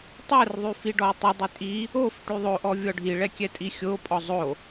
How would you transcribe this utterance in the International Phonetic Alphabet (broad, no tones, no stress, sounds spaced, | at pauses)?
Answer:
tˤ ɛ r ðˤ y f i ɖ ɔ y̯ tˤ i dˤ y tʼ i | o f ʈ y ðˤ o ʔ ɔ vʲ ɔ ɖʱ i ɭ ɛ kʲ ɛ tʼ i xʲ o pʼ ɔ zˤ o